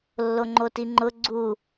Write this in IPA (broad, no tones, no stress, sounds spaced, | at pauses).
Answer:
lː o ŋ͡ǃ o t i ŋ͡ǃ ʊ ɡ͡ǀ u